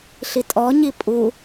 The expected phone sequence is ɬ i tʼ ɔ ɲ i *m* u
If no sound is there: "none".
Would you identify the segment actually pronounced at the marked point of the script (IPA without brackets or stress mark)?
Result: pʼ